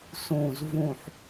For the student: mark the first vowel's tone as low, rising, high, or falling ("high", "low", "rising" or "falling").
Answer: low